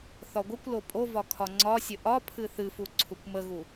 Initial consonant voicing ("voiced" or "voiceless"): voiceless